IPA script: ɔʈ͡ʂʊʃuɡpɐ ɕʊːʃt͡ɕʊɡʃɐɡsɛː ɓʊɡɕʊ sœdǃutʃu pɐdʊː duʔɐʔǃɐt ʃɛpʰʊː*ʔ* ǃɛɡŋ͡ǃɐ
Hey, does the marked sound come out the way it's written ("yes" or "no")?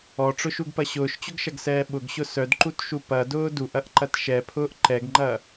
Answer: yes